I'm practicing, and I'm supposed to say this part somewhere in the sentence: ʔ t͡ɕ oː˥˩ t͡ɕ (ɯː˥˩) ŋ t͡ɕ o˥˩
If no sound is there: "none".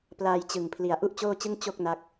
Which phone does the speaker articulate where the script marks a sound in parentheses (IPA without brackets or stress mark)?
ɯ˥˩